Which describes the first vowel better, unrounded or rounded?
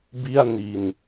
unrounded